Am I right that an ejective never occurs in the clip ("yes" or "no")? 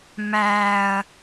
yes